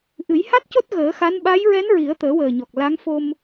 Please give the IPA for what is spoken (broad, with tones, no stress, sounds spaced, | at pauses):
ʔ ɨ˨˩˦ j h a˦˥ t̚ c o˦˥ t̚ ɣ əː˨˩˦ x a˧˥ n ɓ a˧˥ j ɹ ɛ˧˥ n ɹ i˨˩˦ ə̯ t̪ əː˨˩˦ w əː˨˩ ɲ ɔ˨˩ k̚ l a˧˥ ŋ f o˧ m